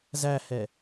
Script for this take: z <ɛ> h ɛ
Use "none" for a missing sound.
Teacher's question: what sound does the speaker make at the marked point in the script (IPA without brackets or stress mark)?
æ